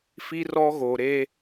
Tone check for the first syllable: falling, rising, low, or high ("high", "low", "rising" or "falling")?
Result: high